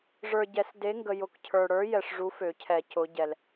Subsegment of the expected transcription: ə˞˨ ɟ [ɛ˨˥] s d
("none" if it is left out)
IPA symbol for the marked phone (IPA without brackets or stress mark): ɛ˨˩˦